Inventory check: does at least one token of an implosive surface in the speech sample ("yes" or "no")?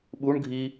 yes